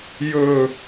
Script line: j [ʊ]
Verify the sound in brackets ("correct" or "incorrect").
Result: incorrect